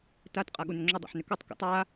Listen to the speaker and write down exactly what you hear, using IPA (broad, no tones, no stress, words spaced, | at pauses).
tat qʼaɠunʏŋ͡ǁo dˤa̰ħnʏkotˤ ko̰tˤ a